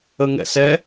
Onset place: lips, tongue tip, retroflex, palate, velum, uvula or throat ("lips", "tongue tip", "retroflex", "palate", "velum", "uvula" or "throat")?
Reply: velum